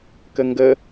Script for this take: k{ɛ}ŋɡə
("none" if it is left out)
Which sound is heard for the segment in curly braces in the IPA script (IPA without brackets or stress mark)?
ə